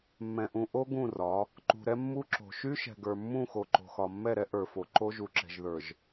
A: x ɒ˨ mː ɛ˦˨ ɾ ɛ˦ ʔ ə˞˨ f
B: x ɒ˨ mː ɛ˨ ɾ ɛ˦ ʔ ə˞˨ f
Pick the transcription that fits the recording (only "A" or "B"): A